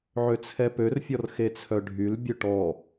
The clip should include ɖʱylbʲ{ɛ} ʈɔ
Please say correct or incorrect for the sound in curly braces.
incorrect